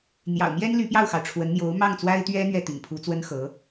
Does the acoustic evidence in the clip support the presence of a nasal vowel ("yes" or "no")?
no